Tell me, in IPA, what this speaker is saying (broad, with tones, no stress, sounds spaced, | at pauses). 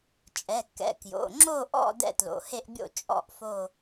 t͡ʃʼ ɛ˩˧˩ kː ɛ̰˩˧˩ k j o̰˩˧˩ ŋ͡ǁ o˥˧ ʔ ɔ̰˥˧ d ɛ̰˥˧ t l o̰˩˧˩ h e˥˧ ʔ bʲ o̰˥˧ t͡ʃʼ ɔ̰˥˧ ʔ f o˥˧